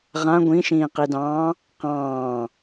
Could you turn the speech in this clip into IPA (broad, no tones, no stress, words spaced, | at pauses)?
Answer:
ʁã ɡʷĩʃĩːqidɑ̃ː | qɑ̃ː